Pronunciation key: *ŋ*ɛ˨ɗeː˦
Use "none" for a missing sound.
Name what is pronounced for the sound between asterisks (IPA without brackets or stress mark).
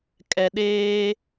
kʼ